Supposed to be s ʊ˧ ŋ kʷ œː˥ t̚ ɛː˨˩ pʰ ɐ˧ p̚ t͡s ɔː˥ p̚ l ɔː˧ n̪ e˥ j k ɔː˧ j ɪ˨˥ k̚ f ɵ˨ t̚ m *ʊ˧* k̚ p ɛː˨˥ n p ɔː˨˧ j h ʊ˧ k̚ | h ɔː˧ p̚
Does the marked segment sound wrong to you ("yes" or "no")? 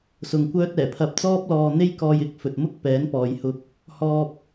yes